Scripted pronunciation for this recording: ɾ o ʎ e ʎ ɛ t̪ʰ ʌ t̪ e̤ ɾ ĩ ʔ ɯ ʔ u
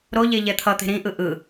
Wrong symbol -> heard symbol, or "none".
u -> ɯ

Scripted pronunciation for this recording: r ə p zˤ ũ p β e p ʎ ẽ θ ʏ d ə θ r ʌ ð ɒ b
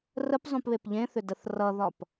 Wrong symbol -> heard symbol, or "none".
b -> p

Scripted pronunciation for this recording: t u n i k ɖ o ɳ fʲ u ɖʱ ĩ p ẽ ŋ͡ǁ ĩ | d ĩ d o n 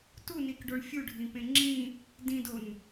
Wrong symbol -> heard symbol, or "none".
none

